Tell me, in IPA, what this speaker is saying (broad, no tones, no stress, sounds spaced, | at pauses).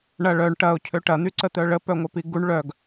ɳ ɐ ɭ œ ɳ ʈ ɐ ʊ̯ cʰ ø ʈ ɐ n̪ y ǀ ə t̪ œ ɭ ə p œ ŋʷ œ p i ɡ u ɳ ɭ œ ɡ